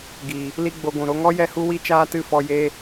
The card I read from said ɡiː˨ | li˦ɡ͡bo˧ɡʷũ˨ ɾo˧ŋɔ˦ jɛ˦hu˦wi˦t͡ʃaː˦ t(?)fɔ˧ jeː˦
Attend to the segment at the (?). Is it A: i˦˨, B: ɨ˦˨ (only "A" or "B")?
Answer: B